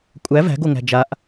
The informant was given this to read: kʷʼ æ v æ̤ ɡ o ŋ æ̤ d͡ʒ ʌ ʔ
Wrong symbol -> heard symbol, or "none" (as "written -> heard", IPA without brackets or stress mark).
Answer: ʌ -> a